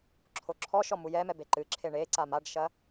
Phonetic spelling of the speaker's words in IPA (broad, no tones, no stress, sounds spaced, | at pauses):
ǁʰ o ǁʰ ɔ ʃ ɔ m u j ɛ m ɛ b e ǃ ɨ ǁʰ e ɳ e ǀ a m a ɖ ʃ ɐ